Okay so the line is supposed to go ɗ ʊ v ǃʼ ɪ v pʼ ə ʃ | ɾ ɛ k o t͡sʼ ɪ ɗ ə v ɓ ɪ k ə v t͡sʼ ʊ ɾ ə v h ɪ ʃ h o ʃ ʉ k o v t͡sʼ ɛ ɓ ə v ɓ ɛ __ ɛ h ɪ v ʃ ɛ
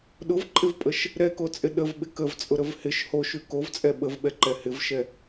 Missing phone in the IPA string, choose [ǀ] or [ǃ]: ǃ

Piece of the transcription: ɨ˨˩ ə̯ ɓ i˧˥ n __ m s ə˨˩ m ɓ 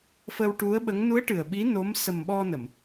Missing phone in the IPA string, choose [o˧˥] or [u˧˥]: o˧˥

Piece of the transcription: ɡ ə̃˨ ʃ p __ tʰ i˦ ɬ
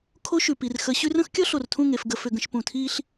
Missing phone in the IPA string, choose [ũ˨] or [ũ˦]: ũ˨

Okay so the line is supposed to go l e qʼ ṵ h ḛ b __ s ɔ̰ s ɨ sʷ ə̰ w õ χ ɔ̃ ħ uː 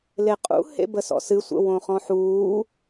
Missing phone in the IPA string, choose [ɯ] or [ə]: ə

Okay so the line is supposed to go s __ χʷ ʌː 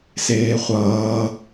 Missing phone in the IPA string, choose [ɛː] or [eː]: eː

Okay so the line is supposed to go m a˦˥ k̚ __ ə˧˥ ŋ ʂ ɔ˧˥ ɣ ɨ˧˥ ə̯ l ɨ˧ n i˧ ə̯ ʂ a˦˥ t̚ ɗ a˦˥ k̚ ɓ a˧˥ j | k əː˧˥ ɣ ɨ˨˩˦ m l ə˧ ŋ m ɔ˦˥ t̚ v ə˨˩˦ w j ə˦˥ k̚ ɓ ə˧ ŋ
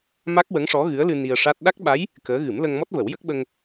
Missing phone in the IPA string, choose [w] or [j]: w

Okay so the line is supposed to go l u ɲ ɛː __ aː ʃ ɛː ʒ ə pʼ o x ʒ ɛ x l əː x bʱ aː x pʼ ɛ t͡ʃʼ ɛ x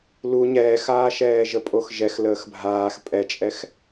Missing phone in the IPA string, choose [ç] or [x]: x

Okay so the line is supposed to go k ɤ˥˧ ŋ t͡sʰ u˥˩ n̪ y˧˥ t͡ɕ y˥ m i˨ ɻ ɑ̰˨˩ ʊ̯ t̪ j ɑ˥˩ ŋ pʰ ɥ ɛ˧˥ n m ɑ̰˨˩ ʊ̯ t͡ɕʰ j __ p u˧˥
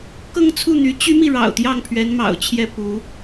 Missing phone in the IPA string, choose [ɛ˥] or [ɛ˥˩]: ɛ˥˩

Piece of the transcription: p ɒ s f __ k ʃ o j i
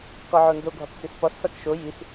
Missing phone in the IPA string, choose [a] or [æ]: æ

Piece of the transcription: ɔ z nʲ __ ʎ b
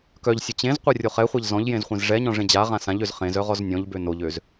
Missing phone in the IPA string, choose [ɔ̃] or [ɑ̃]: ɔ̃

